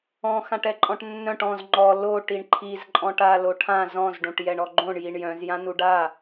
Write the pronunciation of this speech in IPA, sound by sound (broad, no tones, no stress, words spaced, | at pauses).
ɔ̃ xãʈɛǃʼɔ̃ʈnːœ̃ʈ ɔ̃z ŋ͡ǃɔ lo ʈiɳǃʰizǃʼɔ̃ʈ a loʈʰã zɔ̃zɖõʈ jɛɳɔɡ͡ǃõɳ jiɳjœ̃z jãnuɖa